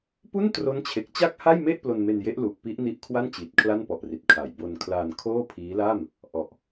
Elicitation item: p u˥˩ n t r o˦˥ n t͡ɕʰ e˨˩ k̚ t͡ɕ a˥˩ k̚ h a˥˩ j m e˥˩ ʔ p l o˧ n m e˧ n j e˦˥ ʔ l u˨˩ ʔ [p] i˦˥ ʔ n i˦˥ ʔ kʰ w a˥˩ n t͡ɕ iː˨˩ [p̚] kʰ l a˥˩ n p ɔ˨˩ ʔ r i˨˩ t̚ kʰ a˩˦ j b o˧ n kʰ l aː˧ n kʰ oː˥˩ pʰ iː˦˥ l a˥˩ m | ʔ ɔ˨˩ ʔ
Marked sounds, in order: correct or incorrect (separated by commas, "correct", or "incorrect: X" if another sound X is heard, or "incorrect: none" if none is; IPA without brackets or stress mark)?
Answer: correct, incorrect: t̚